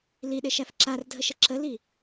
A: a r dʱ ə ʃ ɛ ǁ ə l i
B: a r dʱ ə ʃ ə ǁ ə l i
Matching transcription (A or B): B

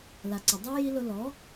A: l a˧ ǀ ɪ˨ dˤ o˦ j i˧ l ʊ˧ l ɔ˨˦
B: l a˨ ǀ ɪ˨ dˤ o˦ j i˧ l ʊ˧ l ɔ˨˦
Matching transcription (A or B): B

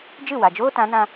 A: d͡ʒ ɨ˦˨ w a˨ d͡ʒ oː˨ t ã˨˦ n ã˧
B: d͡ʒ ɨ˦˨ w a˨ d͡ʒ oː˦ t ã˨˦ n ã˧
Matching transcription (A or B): B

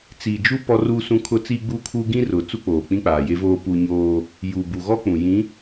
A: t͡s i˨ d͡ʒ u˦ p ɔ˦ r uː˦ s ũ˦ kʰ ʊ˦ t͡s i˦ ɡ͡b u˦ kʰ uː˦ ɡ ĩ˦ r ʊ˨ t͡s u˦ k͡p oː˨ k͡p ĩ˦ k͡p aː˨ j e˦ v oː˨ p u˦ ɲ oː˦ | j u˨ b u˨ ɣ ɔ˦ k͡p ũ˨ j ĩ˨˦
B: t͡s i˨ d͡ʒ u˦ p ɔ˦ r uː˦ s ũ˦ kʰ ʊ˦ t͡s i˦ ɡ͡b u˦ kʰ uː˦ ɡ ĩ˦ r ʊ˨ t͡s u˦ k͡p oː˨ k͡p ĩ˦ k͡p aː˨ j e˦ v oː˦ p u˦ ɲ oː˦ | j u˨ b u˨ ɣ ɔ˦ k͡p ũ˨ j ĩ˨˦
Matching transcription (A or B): B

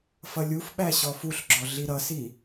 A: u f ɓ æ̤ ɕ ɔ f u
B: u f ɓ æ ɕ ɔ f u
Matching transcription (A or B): B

